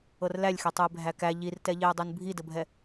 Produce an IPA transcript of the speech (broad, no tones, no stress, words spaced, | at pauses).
ɤrlælʲxetˤuɪ̯ bʱækæ ʎirtɛʎeʊ̯dˤun bʱidəbʱɛ